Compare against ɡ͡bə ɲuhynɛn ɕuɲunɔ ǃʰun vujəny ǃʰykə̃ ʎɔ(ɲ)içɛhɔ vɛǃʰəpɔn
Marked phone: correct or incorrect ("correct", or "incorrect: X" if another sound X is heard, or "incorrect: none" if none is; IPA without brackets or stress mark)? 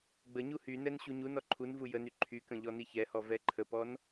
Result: incorrect: n